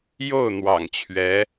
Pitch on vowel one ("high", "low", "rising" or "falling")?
falling